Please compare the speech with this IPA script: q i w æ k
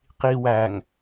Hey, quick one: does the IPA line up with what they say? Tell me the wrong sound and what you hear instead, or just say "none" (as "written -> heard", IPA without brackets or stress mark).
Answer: k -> ŋ